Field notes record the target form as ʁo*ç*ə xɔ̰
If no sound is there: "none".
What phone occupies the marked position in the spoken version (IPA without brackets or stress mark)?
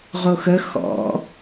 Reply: x